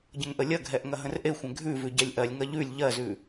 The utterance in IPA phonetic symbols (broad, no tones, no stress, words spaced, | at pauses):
ɟə̃ŋʔəlʲɐɡʱɛʔ ŋɐɦə̃rʔexʷɛ̃ ɡʱʉvʉ ɟɛlʲʔɜlʲŋɐ ʎʉlʲ ʎɜzʉ